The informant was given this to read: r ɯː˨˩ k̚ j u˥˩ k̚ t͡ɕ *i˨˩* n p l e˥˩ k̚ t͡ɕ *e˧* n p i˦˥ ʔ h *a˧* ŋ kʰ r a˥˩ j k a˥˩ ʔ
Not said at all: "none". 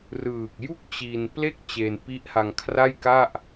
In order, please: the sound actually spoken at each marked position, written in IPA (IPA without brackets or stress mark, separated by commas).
i˧, e˧, a˧